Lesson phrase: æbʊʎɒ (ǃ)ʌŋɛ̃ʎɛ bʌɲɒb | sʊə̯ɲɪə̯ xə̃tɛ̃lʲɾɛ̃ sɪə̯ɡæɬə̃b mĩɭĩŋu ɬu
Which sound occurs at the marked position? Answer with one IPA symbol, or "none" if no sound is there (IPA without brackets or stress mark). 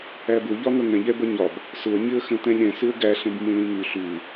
ŋ